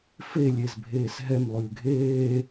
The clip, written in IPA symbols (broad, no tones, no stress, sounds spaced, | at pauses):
f e lʲ e z bʱ eː s ɦ ɛ m lˠ ʉː ɡʱ eː